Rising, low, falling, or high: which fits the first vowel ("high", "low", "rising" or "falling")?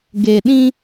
low